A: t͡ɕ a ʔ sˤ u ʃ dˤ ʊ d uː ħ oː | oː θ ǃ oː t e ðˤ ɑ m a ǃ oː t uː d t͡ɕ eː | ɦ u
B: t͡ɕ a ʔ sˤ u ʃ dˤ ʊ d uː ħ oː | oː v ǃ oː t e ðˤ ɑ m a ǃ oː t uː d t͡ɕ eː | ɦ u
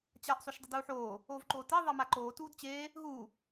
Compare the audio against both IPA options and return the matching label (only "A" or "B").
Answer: B